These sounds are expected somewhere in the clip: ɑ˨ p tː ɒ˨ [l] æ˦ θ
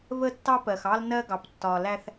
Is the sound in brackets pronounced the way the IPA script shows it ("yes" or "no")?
yes